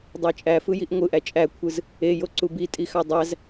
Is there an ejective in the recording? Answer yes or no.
yes